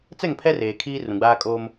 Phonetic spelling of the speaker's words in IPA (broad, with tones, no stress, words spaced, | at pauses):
t͡sɛ˦˨ŋpʰɛ˦ reː˨kʰiː˦ rũ˨ɡ͡baː˦kʼoː˦m